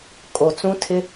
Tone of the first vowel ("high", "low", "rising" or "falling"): low